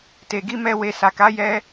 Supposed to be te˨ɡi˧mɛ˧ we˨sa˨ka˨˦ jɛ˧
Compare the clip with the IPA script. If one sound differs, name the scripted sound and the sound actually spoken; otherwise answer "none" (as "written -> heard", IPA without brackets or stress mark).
none